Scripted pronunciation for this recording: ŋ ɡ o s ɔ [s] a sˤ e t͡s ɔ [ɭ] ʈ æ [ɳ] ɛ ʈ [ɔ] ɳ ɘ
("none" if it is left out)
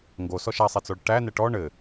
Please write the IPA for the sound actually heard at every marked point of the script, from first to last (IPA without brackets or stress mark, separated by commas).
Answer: ʃ, ɭ, n, ɔ